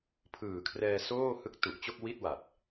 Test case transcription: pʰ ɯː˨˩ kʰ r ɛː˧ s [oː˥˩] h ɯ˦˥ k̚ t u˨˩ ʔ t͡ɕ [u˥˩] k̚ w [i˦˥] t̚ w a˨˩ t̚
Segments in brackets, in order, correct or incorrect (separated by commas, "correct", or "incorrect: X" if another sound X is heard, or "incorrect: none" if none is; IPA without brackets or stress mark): correct, incorrect: o˥˩, incorrect: i˥˩